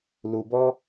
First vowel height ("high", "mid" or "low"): high